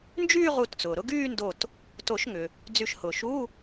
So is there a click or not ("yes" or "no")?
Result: no